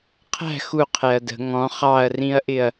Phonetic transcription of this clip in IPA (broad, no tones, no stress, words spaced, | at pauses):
qʰæ̤ xu qʰɛɐ̯də̤ ŋɔ̃ χɑɐ̯rĩɐ̯ʔɪɐ̯